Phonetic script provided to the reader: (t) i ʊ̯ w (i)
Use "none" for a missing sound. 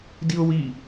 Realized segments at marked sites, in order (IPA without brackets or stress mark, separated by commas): d, i